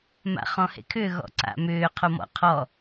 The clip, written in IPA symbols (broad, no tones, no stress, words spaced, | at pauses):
ma̰χɔ̃hḛkʰʏ ɣɔ̰ǀa̰mʏː qʰomɔ̰qʰɔ